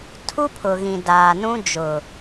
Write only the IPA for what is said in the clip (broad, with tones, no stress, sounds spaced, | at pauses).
tʰ u˦ pʰ ʊ˨ ɣ ĩ˨ d aː˨ n ũ˦ d͡ʒ ʊ˨